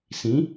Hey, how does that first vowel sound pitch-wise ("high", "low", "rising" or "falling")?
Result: rising